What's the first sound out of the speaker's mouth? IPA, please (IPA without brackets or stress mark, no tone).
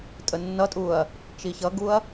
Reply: tʼ